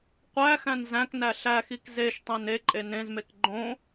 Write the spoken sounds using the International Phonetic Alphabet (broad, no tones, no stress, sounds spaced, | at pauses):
qʷ æ x æ̃ n z æ̃ k n æ ɬ æ x i k z e ʃ tˤ ẽ n e ǃʼ e n ẽ z m e k ɡ͡ǃ õ